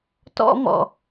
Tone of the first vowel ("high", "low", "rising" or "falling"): high